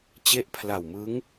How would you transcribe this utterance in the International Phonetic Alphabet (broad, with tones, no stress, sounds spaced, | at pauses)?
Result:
t͡ɕ e˦˥ ʔ pʰ l a˨˩ w m ɯ˦˥ ŋ